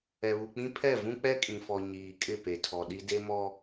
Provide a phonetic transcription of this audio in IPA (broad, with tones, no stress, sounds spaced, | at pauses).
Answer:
ɛ˨ β u˨ k͡p ĩ˦ pʰ ɛ˦˨ v ũ˦ k͡p ɛ˦ kʼ ĩ˨ f ɔ˨ ɲ iː˨ kʼ ɪ˦˨ p e˨ tʰ ɔ˨ ɗ i˦ d e˦ m ɔ˦